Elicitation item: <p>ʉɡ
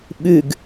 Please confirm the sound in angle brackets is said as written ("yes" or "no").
no